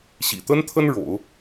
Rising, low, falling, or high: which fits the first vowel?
low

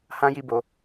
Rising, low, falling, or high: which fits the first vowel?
high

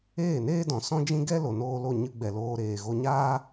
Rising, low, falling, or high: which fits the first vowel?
falling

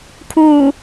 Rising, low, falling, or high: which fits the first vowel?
low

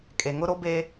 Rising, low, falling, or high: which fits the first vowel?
low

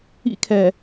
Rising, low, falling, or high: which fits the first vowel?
high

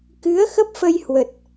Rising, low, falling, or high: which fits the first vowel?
rising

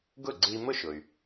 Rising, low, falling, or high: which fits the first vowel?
falling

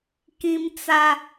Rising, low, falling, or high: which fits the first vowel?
high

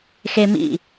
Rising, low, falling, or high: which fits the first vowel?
high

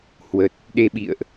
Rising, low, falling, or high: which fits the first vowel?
low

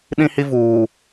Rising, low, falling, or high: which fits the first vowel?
high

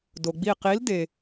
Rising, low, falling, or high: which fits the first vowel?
low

